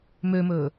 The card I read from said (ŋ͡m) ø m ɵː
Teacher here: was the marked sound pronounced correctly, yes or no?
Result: no